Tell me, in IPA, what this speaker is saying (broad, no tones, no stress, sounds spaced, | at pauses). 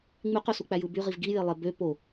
ŋ͡m y q ø s u k͡p æ j ɯ b y ʁ i v ɡ i j e lˠ e b ø p o